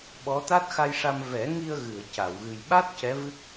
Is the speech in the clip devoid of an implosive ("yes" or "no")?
no